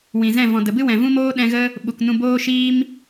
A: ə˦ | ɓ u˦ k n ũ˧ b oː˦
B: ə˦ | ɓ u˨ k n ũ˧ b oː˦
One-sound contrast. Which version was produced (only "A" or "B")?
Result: B